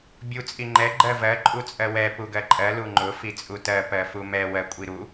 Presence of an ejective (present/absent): present